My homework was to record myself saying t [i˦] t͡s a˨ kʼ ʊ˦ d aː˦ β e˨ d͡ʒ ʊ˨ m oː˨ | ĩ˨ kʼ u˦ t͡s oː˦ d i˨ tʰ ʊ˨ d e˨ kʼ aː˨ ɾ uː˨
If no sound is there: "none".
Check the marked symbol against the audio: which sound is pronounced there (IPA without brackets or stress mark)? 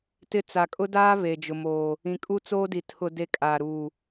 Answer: ɪ˦